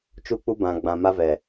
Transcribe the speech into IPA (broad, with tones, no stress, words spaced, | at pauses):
t͡ʃu˦k͡pu˦ bã˨ ɡ͡bã˨ma˦vɛ˨